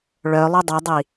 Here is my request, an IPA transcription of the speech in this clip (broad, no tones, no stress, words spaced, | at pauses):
ɭœlˠʉ dˤʉdˤi